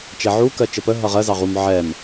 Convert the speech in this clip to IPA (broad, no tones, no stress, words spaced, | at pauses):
t͡ʃɛʕu kɜt͡ʃəpə ɦʌʁɜ zɑʁum ʕɛm